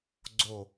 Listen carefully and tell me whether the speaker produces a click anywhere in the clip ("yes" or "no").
yes